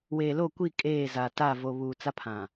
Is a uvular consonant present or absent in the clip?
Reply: absent